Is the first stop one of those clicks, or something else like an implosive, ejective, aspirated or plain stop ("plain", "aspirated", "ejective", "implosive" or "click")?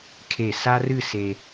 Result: aspirated